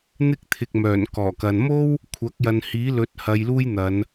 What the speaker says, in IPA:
n̪ɪ˥k̚ t̪ʰɪ˨k̚mœː˨˩n kɔː˨˩kɐ˨n mo˥w | kʷʰɐ˨˥k̚jɐ˨nhiː˨˥lɵ˨˥t̚ hɐ˧jluː˥jn̪ɐ˨˧n

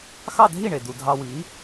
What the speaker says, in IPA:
xɑ˥˨dʱi˥˨ɳe˩ du˩dʱɑ˧wi˩˥

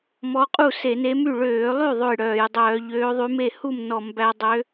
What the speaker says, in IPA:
mɔ˧˥qʼu˥˩ se˧˩˧ne˧˥my˥˩ ɭøː˧˩˧lˠy˥˩ ðˤø˥˩jɽœː˧˩˧jdˤœː˧˩˧ ʎøː˧˥ðˤy˧˥me˥˩ hu˥˩m nɔ˧˩˧mbæ˧˥ dˤø˧˥

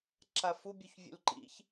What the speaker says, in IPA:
ǁafu bʲuçvʲṵlǃḭç

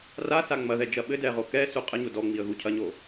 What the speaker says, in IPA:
rasa ŋ͡mɐðɛd͡ʒɐ ɓɘdɛʁo kɛsu qʼɘɲo dɔŋ͡miə̯ɣu cʰɐɲo

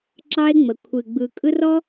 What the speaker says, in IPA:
ǁɑ˦e̯ŋ͡mə˨ kʷʰɨ˨ɡ͡bɯ˨ kʼɯ˦rɔ˦

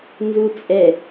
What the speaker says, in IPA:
nzut͡sʼɛ

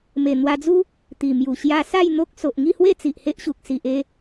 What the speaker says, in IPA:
me˨˩ n̪wa˧d͡zu˦ | t̪i˨˩mju˨˩ ɕja˧sa˥˧j n̪o˦k̚ so˨ʔŋi˥˧hwe˥˧ t͡si˨ʔhe˦ʔɕu˨k̚ si˨ʔe˧

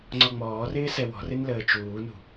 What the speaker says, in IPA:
ŋ͡ǀɔŋ͡mɔːrɪː sɛwɔ̤rɪn ləːt͡ʃuːnṳ

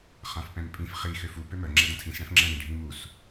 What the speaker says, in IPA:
χãfpɛ̃mpʼĩf χi xøfu pømœ ŋ͡ǁɛdɐ̃tʰĩs ɽɛ̃fŋ͡ǁɛ̃ ɽĩɖʱĩmus

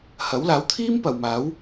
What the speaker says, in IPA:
hɐ˨˥wlaː˨˥wt̪ʰiː˥m pɐ˨wmaː˨˥w

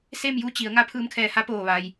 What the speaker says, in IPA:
se˥˨mju˧˥t͡ɕi˩˧ə̯ ŋa˧˥ pʰɯː˧mkʰɛː˧˩ha˧˥poː˧˩ ʋa˩j

